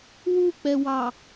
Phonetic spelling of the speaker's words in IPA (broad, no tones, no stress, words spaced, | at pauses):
wuk͡pɛwɑ